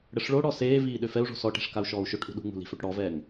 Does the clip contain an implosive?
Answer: yes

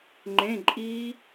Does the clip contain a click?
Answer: yes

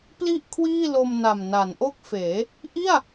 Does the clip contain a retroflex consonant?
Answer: no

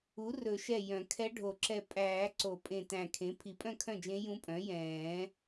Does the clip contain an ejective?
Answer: yes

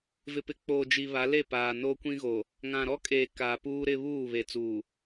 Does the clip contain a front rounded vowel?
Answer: no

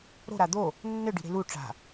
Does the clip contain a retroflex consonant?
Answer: yes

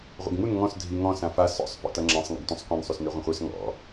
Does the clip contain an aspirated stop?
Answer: no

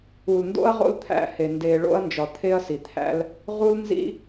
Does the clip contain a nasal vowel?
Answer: no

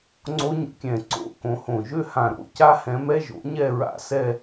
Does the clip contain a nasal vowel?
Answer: yes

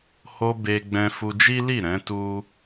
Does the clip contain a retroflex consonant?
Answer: no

